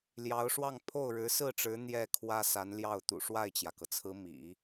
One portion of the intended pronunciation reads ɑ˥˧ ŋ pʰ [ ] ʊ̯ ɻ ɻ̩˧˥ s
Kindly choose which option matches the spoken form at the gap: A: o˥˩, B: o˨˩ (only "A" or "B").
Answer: A